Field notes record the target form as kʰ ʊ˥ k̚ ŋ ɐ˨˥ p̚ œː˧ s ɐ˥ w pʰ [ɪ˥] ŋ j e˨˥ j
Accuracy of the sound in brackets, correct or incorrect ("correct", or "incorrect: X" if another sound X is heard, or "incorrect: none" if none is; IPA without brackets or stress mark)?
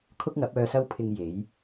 incorrect: ɪ˧